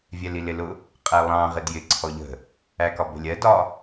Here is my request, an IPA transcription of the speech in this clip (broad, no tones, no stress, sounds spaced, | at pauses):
vʲ ɛ l i l ɪ l ʊ | qʼ æ lˠ ɑ̃ ʁ ɪ d j ɪ ǀʰ ɔ ʎ ə̤ | æ k ɒ b ə̤ lʲ ɜ d ɒ